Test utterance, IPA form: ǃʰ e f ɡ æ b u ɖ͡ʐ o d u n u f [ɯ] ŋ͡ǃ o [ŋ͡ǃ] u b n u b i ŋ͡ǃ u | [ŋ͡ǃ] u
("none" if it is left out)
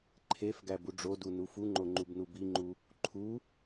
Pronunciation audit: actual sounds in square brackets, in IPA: u, ŋ͡ǃ, ǃʰ

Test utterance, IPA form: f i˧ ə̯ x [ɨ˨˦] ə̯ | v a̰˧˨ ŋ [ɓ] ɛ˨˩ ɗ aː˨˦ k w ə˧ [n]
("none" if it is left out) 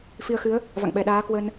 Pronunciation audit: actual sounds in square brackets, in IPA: ɨ˨˦, ɓ, n

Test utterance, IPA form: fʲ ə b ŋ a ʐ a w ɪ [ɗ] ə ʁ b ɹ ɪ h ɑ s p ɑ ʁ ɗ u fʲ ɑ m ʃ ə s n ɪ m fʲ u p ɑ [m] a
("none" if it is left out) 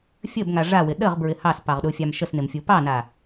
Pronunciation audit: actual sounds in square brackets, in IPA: ɗ, n

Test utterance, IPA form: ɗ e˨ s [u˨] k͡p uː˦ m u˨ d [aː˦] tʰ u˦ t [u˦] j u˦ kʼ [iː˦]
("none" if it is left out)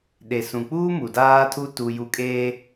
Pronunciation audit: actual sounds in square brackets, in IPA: ũ˨, aː˦, u˦, eː˦

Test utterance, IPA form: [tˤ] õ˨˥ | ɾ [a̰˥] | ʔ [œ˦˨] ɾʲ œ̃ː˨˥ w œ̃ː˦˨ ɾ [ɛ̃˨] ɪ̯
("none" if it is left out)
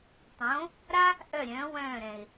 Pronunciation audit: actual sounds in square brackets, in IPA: tˤ, a˥, œ˦˨, ɛ̃˨

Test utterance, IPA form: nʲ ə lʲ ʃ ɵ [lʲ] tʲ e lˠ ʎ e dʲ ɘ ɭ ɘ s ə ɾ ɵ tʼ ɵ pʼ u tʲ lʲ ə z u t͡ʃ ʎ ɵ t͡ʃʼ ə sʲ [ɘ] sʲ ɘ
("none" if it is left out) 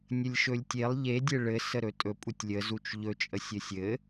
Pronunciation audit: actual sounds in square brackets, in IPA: lʲ, ɘ

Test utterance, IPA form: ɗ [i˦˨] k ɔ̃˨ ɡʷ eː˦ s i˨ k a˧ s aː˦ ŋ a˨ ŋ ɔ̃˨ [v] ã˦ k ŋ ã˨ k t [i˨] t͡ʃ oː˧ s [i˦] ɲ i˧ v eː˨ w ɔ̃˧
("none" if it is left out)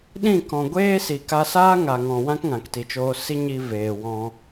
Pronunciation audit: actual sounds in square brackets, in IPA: ĩ˦˨, w, i˨, i˦

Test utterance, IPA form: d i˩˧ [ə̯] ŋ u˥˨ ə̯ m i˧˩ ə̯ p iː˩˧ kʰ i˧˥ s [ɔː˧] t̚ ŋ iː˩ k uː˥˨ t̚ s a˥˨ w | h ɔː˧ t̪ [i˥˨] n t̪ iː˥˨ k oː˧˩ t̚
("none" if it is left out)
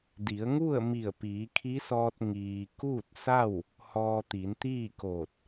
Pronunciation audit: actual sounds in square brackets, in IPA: ə̯, ɔː˧, i˩˧

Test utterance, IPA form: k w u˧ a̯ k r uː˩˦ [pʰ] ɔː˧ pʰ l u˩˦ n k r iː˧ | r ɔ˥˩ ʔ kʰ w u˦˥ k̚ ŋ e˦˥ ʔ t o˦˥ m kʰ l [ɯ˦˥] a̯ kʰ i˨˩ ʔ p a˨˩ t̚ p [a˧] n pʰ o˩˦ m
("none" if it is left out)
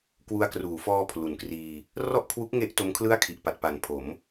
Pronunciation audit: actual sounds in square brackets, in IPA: f, ɯ˥˩, a˨˩

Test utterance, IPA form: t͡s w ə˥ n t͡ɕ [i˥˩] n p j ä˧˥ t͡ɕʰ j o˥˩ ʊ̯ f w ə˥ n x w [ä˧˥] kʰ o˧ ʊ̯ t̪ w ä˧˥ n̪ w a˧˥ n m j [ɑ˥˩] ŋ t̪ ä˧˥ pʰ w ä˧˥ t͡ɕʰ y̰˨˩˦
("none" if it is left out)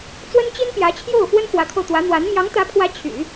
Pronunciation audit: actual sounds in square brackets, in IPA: i˥, ä˧˥, ɑ˧˥

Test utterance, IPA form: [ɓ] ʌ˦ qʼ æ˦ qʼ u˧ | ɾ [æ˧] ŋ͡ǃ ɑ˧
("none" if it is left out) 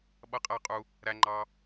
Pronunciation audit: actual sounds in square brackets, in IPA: ɓ, æ˧

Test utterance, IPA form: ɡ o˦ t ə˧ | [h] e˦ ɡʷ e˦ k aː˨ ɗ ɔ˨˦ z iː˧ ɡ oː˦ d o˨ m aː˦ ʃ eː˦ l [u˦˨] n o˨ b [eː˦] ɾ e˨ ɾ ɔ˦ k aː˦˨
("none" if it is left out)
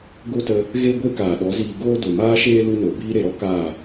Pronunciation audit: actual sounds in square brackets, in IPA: ɣ, u˦, iː˦

